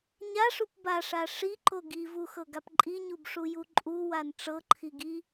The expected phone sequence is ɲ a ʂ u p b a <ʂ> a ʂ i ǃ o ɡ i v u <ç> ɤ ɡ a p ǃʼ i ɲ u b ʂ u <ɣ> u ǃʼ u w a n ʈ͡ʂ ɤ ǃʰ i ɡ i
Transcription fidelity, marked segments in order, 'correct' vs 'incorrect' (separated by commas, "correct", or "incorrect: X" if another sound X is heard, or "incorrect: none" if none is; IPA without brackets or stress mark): correct, incorrect: x, incorrect: j